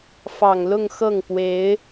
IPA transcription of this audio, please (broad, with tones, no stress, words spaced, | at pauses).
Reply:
fɑ˨˩ŋlʊ˥˧ŋ xɤ˥˩ŋpwe˧˥ɪ̯